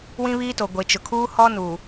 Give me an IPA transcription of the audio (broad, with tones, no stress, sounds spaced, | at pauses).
w ĩ˦ β iː˦ t o˨ ɡʷ e˨ t͡ʃ ʊ˨ kʰ uː˦ h ɔ˦ n uː˨